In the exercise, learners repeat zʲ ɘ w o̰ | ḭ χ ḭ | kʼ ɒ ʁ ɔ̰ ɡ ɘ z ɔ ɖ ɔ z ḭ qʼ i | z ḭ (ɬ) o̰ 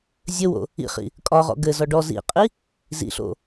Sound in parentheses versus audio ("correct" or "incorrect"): correct